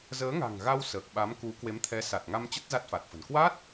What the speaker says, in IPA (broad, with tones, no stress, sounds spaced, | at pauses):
z əː˨˦ ŋ a̤˨˩ ŋ ɣ a˧ w s əː˨˩ k̚ ɓ a˨˦ m k u˨˦ k w e˨˦ m t̪ʰ ɛ˨˦ s a˨˩ t̚ ŋ a˧ m t͡ɕ ə˦˥ t̚ z a˦˥ t̚ f a˨˩ t̚ f ə̤˨˩ n k w a˦˥ t̚